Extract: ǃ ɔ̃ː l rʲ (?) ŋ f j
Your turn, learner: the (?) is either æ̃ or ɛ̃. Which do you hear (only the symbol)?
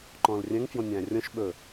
æ̃